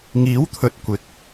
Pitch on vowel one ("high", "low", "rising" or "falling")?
rising